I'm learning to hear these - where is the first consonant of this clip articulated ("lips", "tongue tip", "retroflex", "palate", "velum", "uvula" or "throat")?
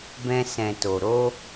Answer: lips